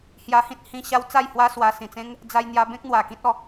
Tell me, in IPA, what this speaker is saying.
h j a˧ h ĩ˦ t̚ h ĩ˧ ɕ a˦ w t͡s a˥˧ j h w a˦ s w a˧ s ĩ˨˩ t͡s ẽ˦ ŋ | d͡z a˧ j n̪ j a˧ b ẽ˦ k̚ n̪ w a˨˩ k ĩ˦ t̚ ɔ˧

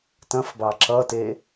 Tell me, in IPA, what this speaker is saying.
t ɐ̃ f b ɑ ǁ ʌ t e

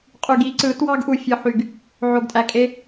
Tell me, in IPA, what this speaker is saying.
qʼ y˨ ɡ i˦ ǀ ɯ˨˦ t w ɑ˦ ɡ ʔ u˨ fʲ ɯ˨ ħ y˨ ɡ | ʕ o˨ ɡ tʼ æ˨ kʼ e˦

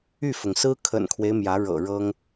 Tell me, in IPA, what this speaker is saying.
y˥˩ f ʊ˩ ŋ s ɹ̩˥ kʰ ə̰˨˩ n kʰ w e˦ ɪ̯ m j ä˧˥ ɻ ɤ̰˨˩ ɻ ɤ˥ ŋ

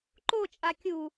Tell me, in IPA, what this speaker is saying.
ǃ o t͡ʃʼ a kʲ u

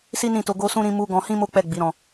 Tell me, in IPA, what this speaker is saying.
s i˦ n ĩ˦˨ t o˧ ɡ o˧ s ũ˧ ɾ ĩ˧ m u˧ ɡ ɔ̃˧ h ĩ˦ m o˦ k͡p ɛ˦˨ ɡ͡b i˨˦ ɾ ɔ̃˧

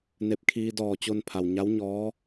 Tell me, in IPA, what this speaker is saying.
n e˧˩ p̚ kʰ iː˧ d ɔː˧˩ t͡ɕ o˧ n pʰ a˩ w ɲ a˧˥ w ɲ ɔː˧˥

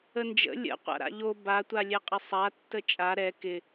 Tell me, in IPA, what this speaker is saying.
ə n d͡ʒ ə̰ lʲ ə̰ qʷ a̰ ɾ a̰ ʎ o b a tʷ a lʲ ɛ qʼ ɪ sˤ a tː ə t͡ʃʼ a ɾ ɛ k ɪ

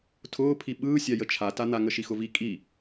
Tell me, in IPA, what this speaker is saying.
tʰ ʊː pʰ i ɓ ɯː sʲ a j ə t͡ʃʰ a t a n̪ a ŋ ə ʃ i x ʊ v i kʼ i

